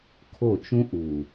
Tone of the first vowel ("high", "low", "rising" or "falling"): falling